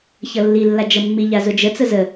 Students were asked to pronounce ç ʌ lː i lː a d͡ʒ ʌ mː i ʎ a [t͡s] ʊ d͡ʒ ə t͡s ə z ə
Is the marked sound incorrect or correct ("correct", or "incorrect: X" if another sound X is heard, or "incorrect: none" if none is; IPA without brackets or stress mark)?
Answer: incorrect: z